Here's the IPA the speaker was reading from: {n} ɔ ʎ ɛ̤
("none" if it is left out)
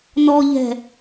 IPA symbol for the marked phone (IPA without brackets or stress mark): n